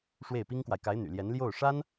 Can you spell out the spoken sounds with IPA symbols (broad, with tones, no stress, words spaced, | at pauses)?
ʂwe˥˩ɪ̯pi˥ŋkwa˨ɪ̯ ka˧˥ɪ̯ n̪y̰˨˩ljɛ˧˥n ljo˥˩ʊ̯ʂa˥n